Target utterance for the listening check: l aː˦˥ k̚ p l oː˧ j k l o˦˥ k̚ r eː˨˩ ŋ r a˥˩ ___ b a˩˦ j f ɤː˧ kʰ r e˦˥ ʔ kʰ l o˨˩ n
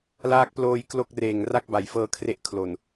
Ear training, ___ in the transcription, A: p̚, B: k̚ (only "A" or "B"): B